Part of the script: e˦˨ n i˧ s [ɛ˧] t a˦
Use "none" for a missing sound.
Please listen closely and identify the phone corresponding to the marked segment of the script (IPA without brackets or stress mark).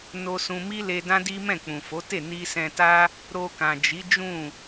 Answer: ɛ̃˧